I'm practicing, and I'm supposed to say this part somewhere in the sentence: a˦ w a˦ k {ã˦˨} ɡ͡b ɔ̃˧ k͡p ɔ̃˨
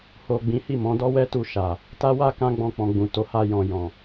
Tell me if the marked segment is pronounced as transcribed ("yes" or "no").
no